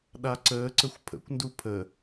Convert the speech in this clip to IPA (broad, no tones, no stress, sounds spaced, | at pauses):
ɗ a ǀ əː ǀ ə xʷ pʰ ə̰ kʷ n d u pʰ ə